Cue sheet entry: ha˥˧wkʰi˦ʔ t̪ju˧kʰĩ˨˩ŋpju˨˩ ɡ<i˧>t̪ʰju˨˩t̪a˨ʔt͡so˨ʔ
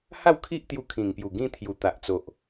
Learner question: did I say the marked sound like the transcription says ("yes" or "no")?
no